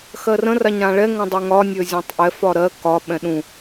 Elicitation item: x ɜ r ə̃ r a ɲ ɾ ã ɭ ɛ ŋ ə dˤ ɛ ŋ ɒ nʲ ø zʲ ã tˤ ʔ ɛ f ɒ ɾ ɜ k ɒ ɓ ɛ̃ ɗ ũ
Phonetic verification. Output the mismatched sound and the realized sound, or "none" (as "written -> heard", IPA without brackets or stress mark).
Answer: ə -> ə̃